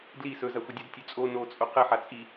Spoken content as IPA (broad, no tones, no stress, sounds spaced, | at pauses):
d l i s ɵ z a xʷ ɘ dʲ a d tʲ ɵ t͡sʼ o n o t͡sʼ o q ɘ ħ a t͡sʼ i